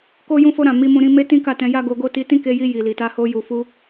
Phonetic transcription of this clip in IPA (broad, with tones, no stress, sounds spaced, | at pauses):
k o˦ j ũ˦ f o˦ ɾ ã˦˨ m i˧ m ũ˧ ɾ ĩ˧ m e˦ t ĩ˦ k a˦˨ t ɛ̃˧ j a˦ ɡ o˧ ɡ o˦ t i˧ t ĩ˦ k e˧ j i˧ j i˨ l i˨ t a˧ h o˧ j u˨ f u˧